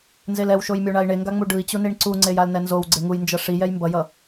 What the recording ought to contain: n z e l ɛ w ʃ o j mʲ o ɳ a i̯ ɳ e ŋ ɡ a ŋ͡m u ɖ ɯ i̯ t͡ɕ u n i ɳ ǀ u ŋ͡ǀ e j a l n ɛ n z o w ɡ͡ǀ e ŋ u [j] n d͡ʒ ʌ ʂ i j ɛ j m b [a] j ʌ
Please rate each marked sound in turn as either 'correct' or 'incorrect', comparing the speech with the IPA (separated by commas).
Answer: correct, incorrect